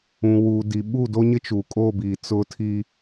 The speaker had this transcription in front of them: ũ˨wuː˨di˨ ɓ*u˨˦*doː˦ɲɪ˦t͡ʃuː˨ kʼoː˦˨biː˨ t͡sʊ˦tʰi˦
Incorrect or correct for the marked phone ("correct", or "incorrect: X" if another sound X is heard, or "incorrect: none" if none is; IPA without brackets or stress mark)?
incorrect: u˦˨